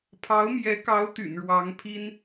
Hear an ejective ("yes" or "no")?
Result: no